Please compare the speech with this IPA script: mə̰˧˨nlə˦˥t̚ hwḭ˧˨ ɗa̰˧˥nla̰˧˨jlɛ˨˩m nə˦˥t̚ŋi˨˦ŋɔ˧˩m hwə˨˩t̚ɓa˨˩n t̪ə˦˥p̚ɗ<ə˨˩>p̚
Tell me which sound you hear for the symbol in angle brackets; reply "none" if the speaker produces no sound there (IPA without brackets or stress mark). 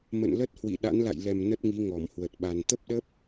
ə˦˥